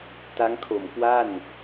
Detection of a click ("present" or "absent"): absent